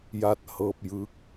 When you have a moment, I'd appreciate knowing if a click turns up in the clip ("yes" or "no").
no